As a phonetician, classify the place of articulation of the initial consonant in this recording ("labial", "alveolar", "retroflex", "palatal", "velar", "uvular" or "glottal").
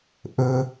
glottal